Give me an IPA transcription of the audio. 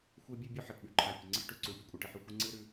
xʷ e˦ bʲ ɨ˦ bʲ ʉ˦ ħ ɐ˨ ʈ ɓ ʉ˨ ǃʰ a˨ pʲ ɐ˨ ŋ͡ǀ ɨ˦ ħ ʈ ʉ˨ ǀ u˨ pʲ u˦ kʷʼ e˨ ʈ ɨ˨ ħ ʉ˨ xʷ i˦ ŋ͡ǀ ɨ˦ ɾ ʉ˦

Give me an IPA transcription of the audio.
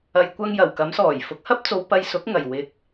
ɐ˨ j kʷ ɐ˧ ŋ j ɐ˨˩ w k ɐ˨˥ m s ɔː˨˩ j f ʊ˨˥ k̚ h ɐ˥ p̚ t͡s o˨˧ w p ɐ˧ j s ʊ˨˥ k̚ ŋ ɐ˨˩ j w ɪ˨ k̚

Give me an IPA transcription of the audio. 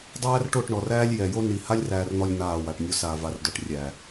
dˤ æː˦ r ʈ o˦˨ ʈ ɳ ɔ˨ r æː˦ lʲ j ɛ˨ j o˦ n i˨ h a˦ lʲ r æː˨ r n̪ ɔ˨ lʲ n̪ aː˦˨ w a˨ ʈ nʲ o˦ s aː˨ v a˨ r d ɔ˨ ʈ rʲ æ˨

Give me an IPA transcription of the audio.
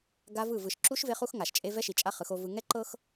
ɡ a˦ v ɯ˦˨ v ɯ˨ ʃ ǁ u˦ ʃ v e˦ χ u˦ x ŋ a˨ ʃ t͡ʃʼ e˦ v ɛ˦ ʃ i˨ t͡ʃʼ a˦ χ ɯ˨˦ x o˦ v ɯ˦ ŋ ɛ˦ ǃ ɤ˦ x

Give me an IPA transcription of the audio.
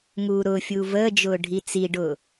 ŋ uː ɾ ʊː fʲ uː v əː d͡ʒ ʊː ɖʱ i t͡s i ɖ ʊː

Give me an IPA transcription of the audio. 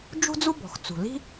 d͡ʒ ṳ˥ d͡z u˥ b ɔ̤˩ x t͡s ṳ˩ l i̤˥

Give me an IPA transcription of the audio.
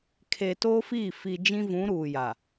kʰ e˨ t oː˦ f i˦˨ f i˨ d͡ʒ ĩ˦ v ũ˨˦ ɾ uː˨ j a˨

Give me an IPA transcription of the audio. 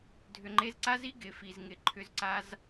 dʱ ʏ˨ ŋ͡ǃ e˧ z ǀ a˦ z i˦ ɡ ɪ˨ f i˨ z ŋ ɪ˧ ǃʰ ʏ˧ z ǀ a˧ z

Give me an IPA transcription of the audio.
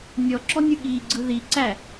nʲ ɔ ǁ ɔ nʲ ɯ ɠ i ɡ͡ǀ ɯ ð i ǀ æ

